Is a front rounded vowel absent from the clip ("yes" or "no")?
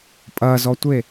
yes